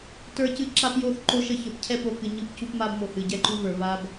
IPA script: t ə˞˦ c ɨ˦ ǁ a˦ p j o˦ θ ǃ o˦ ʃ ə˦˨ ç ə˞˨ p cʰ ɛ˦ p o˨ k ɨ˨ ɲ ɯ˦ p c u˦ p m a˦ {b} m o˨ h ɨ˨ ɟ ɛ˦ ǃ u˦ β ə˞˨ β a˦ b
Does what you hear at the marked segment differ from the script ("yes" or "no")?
no